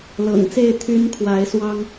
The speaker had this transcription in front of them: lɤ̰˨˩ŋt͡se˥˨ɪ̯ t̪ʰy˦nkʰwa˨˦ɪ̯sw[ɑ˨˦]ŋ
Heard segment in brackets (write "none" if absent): ɑ˦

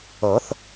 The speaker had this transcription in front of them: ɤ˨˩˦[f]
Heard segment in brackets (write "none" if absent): θ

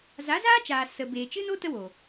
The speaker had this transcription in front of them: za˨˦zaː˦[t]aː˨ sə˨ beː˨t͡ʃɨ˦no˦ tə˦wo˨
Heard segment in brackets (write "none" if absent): t͡ʃ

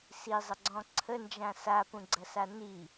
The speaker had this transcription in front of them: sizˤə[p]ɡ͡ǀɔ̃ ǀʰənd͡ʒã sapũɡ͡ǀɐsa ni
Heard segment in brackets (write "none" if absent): none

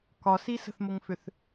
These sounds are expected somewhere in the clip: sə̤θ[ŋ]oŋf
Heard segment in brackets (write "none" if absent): m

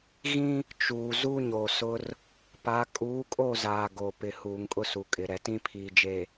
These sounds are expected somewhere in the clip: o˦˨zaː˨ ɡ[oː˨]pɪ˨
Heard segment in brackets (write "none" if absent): oː˨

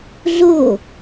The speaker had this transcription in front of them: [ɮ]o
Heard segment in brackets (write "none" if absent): ɮ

